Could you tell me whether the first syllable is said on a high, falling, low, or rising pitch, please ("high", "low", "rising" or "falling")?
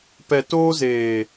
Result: low